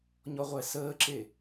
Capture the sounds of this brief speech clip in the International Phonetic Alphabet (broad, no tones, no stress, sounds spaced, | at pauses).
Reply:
ɲ ɔ ʁʷ ɛ s əː ǁ e